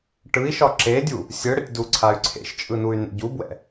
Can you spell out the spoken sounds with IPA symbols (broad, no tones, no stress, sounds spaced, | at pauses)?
ʈ ɯ i̯ ʃ ɒ ǁ e dʲ u | sʲ ɯ ɽ ə tʲ d u ǀʰ a y̯ ǀʰ ḛ ʃ t͡ʃʼ ɯ n u y̯ n ḛ ɟ u b w ɛ̰